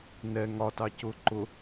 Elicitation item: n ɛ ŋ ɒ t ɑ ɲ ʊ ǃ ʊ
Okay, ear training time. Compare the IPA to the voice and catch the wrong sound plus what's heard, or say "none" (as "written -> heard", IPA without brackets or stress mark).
ɲ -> c